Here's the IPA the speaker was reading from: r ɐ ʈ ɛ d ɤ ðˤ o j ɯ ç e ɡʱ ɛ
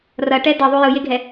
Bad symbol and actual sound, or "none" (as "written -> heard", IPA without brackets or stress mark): ç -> j